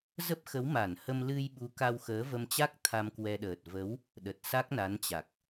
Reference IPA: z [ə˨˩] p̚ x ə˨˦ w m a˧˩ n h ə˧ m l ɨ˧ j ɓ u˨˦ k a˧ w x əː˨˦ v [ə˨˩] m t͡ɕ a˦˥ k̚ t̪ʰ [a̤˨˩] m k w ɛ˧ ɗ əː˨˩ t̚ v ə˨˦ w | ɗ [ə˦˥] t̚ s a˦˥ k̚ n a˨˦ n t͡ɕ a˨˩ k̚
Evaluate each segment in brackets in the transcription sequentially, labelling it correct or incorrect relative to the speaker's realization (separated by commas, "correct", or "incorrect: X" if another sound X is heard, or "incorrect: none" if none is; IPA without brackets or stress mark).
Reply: incorrect: ə˦˥, incorrect: ə˧, incorrect: a˧, incorrect: ə˨˩